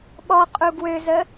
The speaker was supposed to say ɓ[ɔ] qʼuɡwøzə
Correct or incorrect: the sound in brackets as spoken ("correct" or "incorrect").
correct